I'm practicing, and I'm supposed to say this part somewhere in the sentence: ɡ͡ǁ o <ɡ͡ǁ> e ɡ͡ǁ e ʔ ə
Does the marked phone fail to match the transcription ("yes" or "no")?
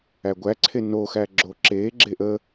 yes